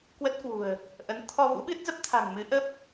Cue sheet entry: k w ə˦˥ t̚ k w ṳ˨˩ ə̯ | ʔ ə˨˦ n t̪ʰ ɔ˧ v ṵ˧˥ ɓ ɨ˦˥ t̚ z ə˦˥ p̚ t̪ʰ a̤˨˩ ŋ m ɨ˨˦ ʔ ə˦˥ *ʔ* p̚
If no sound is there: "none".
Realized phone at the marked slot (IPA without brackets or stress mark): none